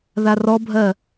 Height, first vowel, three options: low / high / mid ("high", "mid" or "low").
low